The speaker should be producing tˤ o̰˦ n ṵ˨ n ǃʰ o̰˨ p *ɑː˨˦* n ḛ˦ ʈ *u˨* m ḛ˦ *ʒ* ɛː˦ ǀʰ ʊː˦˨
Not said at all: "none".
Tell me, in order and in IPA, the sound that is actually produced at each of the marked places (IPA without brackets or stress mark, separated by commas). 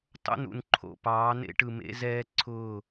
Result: ɑː˨˦, ɯ˨, z